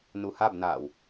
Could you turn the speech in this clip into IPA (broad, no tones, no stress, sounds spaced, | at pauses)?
n u h a b n aː w